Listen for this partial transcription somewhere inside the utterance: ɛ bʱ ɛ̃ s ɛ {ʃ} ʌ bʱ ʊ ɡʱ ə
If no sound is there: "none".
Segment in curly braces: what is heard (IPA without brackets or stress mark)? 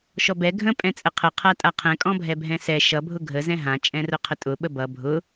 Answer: ʃ